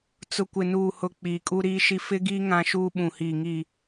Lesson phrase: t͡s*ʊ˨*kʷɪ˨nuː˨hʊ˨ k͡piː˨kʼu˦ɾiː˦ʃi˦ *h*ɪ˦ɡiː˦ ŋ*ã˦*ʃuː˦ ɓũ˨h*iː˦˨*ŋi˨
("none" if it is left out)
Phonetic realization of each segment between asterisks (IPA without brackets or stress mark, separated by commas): ʊ˨, f, ã˦, iː˨